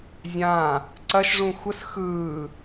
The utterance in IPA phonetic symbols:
zʲ ãː | ǀ ɐ ʃ ʐ ũ xʷ ə s x ɯː

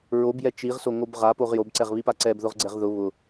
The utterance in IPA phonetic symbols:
ɹ o b j ɛ t͡ʃ i ʁ s o ŋ o b ʁ a p o ʁ j o b ǀ ɛ ʁ β i p a ǀ ɛ b ð ʊ ʁ ɡ͡ǀ ɛ ʁ ð ʊ β ʊ

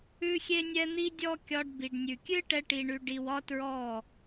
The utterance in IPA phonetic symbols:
ʉ˦ xʲ e˦ nʲ ɛ˦ n̪ i˦ dʲ ɔ˦ kʲ ɒ˧ ɖ b i˨ ɖ nʲ ʉ˨ kʲ ɨ˦ ʈ ɛ˧ ʈ i˨ ɳ ʉ˨ ɖ i˨ w ɒ˦ t ɹ ɔ˦˨

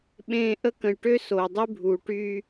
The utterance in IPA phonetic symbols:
ɓ ẽː˦ ʔ ə˦ k ə̃˨ j ʈ ø˦ s oː˨ dˤ y˦ bʱ uː˨ ʈ yː˦

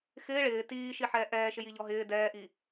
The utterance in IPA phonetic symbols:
x ɪː ɭ ɪː t iː ʃ i ħ ɛː ʔ ɛː ʃ ɪ j i ʎ ɔ ɦ ɪː d ɛː ʔ i

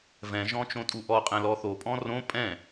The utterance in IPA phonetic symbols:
v ɛ̃ ʒ ɔ̃ t͡ʃ õ tʼ u ʔ ɔ qʼ ɛ̃ l ɔ θ o pʼ ɔ̃ r õ pʼ ɛ̃

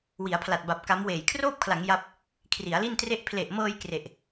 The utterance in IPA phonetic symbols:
w i˩˦ a̯ pʰ l a˨˩ t̚ b a˨˩ p̚ k a˦˥ m w eː˨˩ j kʰ r oː˥˩ p̚ kʰ l a˩˦ ŋ j a˦˥ p̚ | kʰ r i˩˦ a̯ l i˥˩ n t r e˥˩ ʔ pʰ l e˨˩ ʔ m ɤː˧ j k r e˨˩ ʔ

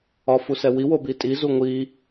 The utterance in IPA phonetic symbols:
ɒ f u s ɛ w i w o b i tʼ i z u ŋʷ i

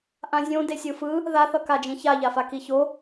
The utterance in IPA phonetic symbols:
ʔ ã zʲ õ d e sʲ ɯ f ɯ | ð a θ ʌ k a d͡ʒ ĩ ç a ʎ a f a k i ç o

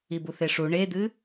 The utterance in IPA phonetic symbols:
i b u θ e ʂ u ɳ e d̪ ɨ

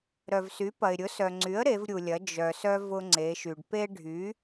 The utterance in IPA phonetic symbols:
ɾ œ˩ v s y˩˥ p ɐ˩ ɪ̯ ɾʲ ʊ˩˥ s œ˩ ŋ͡ǀ y˩˥ ə̯ ɾ e˩˧ v ɾʲ u˩ lʲ ɐ˩˧ d͡ʒ œ˩ s œ˦ v ʊ˦ ŋ͡ǀ e˩˧ ʃ y˩ ɖ p e˦ ɖʱ y˩˥

